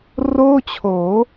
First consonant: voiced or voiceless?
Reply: voiced